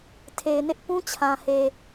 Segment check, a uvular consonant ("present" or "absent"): absent